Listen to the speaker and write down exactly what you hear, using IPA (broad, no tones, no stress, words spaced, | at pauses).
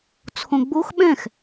t͡sʰõɡ͡box ɓɛ̃x